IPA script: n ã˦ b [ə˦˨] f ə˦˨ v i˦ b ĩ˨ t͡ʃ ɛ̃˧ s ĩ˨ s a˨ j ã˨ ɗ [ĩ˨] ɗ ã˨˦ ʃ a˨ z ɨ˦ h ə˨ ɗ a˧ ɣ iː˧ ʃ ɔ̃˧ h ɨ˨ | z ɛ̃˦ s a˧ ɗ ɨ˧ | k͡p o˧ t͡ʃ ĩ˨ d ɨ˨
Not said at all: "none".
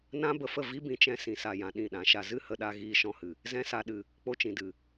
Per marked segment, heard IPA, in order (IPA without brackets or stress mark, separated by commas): ə˨, ĩ˦˨